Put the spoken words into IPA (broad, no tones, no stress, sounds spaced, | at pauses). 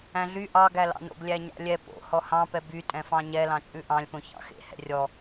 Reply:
æ̃ ɮ y ʔ ɑ ɡ æ l ɑ̰ n o̰ ɡ lʲ æ ɲ ɑ̰ lʲ ɛ p o̰ h ɔ h ɑ̃ p ɛ b y tʼ ɛ̃ f ɑ̃ ɲ ɛ l ɑ̃ t͡ʃʼ ʉ ʔ ɑ̃ lʲ p õ ç ɑ̰ x ḛ h ɛ̰ rʲ ɔ